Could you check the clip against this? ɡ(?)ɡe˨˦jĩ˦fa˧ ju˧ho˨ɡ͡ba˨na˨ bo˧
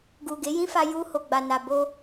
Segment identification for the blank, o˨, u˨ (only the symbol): u˨